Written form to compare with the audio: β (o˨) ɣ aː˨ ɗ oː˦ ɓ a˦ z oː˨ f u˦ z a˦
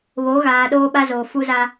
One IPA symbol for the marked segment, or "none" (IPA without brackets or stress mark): o˨˦